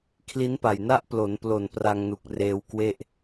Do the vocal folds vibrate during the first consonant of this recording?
no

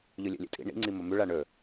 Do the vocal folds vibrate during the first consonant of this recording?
yes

